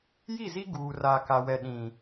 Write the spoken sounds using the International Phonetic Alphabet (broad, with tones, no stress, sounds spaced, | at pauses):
j i˦˨ z i˦ ɡ uː˨ r aː˨ k a˨ w ɛ˨ ɗ ĩ˨